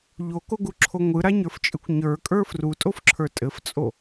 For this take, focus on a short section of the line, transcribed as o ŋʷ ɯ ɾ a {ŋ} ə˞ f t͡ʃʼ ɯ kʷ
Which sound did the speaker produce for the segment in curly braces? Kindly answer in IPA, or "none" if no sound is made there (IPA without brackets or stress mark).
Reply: ɲ